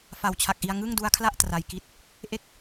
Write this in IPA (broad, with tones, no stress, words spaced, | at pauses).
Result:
fa˨˩wt͡ɕʰa˨˩k̚ʔi˧a̯ ŋɯ˥˩ŋdu˦˥a̯kʰla˥˩ʔ tra˧jki˥˩t̚ | ʔe˥˩k̚